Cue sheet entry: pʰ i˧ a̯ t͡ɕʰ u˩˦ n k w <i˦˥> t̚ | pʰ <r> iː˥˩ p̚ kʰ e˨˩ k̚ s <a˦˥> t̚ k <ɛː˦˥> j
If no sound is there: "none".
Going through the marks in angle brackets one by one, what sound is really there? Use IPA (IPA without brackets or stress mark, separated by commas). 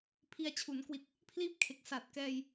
i˨˩, l, a˨˩, ɛː˧